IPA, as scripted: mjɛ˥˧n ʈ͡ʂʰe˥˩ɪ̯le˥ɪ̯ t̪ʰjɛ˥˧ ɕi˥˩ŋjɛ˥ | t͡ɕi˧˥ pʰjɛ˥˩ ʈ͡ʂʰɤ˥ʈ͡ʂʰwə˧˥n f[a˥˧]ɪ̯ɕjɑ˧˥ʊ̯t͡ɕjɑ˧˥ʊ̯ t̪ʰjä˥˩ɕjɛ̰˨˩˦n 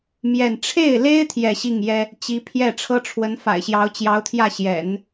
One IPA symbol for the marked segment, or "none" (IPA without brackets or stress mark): a̰˨˩